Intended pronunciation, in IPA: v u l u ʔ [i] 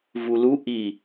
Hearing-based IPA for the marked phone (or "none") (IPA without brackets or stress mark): i